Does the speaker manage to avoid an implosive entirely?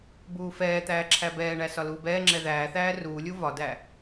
yes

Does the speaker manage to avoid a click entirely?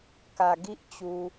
yes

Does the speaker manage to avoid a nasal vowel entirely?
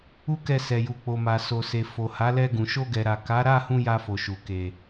no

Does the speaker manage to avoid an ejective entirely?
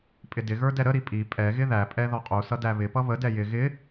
no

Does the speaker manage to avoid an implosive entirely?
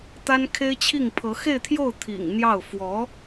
yes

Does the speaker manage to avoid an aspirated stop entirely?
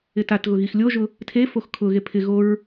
no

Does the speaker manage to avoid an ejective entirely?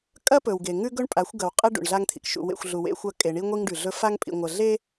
no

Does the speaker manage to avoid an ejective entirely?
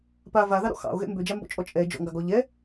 no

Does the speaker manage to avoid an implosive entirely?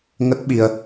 no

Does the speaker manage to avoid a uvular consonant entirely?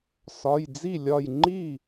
yes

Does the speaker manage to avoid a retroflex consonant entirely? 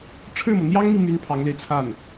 no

